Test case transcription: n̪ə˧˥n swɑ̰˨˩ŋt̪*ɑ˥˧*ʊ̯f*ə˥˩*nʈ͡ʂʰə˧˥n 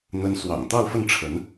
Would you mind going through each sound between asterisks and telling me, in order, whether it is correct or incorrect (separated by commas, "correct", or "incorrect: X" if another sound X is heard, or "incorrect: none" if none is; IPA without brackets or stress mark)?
correct, correct